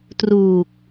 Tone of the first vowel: low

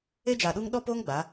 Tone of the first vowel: high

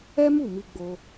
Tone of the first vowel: high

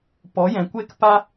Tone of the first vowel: rising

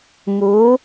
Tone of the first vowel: rising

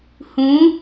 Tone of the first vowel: rising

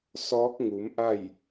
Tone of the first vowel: rising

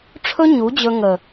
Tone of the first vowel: high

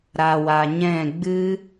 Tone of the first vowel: low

